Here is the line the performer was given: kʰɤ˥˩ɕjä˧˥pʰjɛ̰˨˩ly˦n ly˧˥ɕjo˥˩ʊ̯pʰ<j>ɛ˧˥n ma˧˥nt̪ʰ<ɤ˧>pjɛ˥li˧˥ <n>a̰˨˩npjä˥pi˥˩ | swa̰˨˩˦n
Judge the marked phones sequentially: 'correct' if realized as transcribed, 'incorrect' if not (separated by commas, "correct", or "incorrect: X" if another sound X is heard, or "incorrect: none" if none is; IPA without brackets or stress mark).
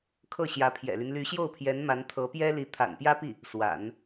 correct, incorrect: ɤ˧˥, incorrect: t̪ʰ